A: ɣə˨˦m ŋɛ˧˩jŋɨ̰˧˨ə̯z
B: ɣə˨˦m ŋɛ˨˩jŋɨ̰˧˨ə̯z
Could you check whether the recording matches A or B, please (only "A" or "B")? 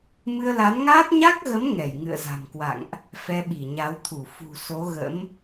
A